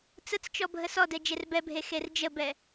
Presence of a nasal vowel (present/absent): absent